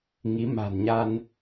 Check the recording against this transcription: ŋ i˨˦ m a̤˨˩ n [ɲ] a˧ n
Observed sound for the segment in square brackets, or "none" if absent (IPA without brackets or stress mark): ɲ